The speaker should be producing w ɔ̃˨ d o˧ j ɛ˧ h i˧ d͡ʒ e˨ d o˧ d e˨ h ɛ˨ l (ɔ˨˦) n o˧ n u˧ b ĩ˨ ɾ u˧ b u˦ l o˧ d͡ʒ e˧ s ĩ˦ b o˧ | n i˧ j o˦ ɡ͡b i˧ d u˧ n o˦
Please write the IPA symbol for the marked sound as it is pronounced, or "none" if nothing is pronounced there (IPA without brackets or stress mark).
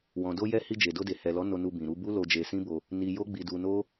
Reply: ɔ˨˦